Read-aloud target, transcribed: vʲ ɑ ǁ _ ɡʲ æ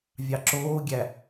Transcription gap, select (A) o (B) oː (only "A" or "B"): B